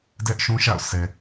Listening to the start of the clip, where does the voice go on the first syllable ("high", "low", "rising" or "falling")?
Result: high